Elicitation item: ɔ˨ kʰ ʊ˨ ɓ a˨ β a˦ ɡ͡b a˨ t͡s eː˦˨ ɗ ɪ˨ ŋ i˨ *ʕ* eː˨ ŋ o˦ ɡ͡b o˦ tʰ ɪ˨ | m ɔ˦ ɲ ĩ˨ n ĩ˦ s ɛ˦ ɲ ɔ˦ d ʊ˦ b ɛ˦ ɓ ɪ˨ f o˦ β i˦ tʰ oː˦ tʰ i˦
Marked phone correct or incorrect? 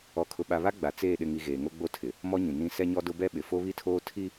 incorrect